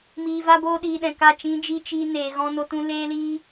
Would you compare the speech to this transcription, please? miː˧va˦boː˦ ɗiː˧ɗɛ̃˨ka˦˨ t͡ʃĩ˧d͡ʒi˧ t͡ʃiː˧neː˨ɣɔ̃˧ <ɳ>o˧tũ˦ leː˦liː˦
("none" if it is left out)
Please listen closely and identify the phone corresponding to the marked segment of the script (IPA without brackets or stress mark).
n